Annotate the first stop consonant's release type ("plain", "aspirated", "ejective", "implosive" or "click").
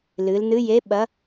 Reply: implosive